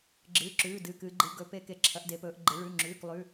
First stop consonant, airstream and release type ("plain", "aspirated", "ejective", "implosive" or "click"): click